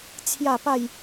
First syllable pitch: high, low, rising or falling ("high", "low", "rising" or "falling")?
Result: falling